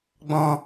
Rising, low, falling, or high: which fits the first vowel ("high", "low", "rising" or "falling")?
low